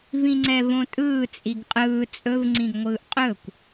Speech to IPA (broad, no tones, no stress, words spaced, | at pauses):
vĩŋ͡ǀɛvõtʼɯː t͡sʼiɡqʼɯː t͡sʼɵv ŋ͡ǀĩɡŋʷɯːʔqʼɵkʷ